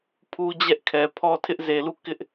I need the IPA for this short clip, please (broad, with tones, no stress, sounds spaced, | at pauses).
pʰ u˦ d͡ʑ ɛ˦ ʔ kʰ ɛ˨ pʰ ɔ˦ tʰ ɪ˦ ʔ z e˨ l u˦˨ k ɪ˦ ʔ